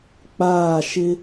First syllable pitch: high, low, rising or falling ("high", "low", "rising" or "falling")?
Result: falling